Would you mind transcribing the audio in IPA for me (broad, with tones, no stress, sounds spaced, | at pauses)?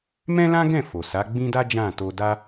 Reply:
m ɛ̃˦ l ã˦ ɡ ɛ̃˦˨ f o˨ s a˨˦ ɡ͡b ĩ˦ d a˦ d͡ʒ ã˦˨ t o˧ d a˦